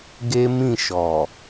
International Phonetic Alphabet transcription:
ɡe˦mĩ˦˨ ʃɔ˨

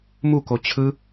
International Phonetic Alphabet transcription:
muko t͡ɕʰɯ

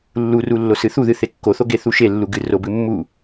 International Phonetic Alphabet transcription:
lːuru lːosɨθuðɨ θekːoθo ɡeθuʃelːu ɡɨrobɨ mːu

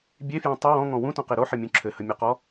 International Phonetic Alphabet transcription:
bʲefjɔ̃ tˤə wɔ̃ŋɔ̃ wũtɔ̃qe ɾoħəmʲũ ǁʰɘhəmʲɘqɔ

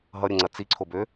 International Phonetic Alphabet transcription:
ɦʌɾʲəŋ͡ǀɐ t͡siǀʰobø

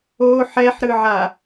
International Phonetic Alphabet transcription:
o ħɛħɾɯʕa

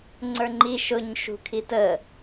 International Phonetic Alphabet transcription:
ŋ͡ǀə˞ŋ͡ǃi ʃʊɲ ʃṳkʰitə

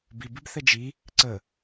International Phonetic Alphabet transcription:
bibibθɛ d͡ʒi | ǀə

